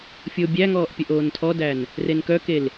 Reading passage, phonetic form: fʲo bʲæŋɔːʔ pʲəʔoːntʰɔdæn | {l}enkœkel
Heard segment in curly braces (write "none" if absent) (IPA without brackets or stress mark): r